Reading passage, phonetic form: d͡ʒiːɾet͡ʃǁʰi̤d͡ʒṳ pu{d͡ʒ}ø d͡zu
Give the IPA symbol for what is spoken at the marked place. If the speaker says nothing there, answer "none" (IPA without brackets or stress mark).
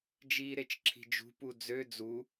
d͡z